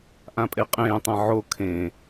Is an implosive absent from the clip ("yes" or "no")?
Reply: yes